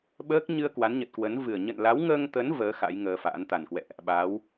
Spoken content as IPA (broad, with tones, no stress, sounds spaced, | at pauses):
ɓ əː˦˥ k̚ ɲ ɨ˧ ə̯ k w a˨˦ n ɲ ə˨˩ t̚ k w ə˨˦ n v ɨ˨˩ ə̯ ɲ ə̰˧˨ n l a˨˦ w ŋ əː˧ ŋ t̪ ə˨˦ n v əː˨˦ x a̰˧˥ j ŋ əː˧ f a̰ː˧˥ n t̪ a˨˩ n k w ɛ̰˧˨ ʔ | ɓ a˨˦ w